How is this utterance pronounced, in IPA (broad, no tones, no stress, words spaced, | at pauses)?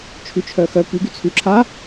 t͡ʃʰyt͡ʃʰœxœ pyɡy t͡sʰyǁʰa